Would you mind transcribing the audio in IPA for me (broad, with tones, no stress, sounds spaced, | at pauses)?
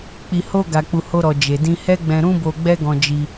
k͡p i˨ h o˧ ɡ a˨ k͡p u˨ h o˧ ɾ ɔ˨ d͡ʒ e˨ d ĩ˧ h ɛ˦ ɡ͡b ɛ̃˧ ɾ ũ˦ b o˧ ɡ͡b ɛ˦ ɡ ɔ̃˧ d͡ʒ i˧